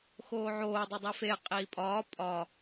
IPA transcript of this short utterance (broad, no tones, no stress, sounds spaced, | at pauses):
x oː ʕ oː dˤ o dˤ i f e qʼ iː pʼ ɒː pʼ ɒ